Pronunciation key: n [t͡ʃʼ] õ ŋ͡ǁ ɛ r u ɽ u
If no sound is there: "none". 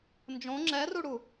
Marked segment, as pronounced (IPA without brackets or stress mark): d͡ʒ